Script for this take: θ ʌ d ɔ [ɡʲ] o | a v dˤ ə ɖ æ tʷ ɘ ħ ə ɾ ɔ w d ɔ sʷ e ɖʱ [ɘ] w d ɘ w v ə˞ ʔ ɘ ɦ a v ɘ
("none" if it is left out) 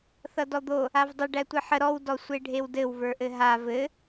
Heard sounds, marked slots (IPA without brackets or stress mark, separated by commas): d̪, e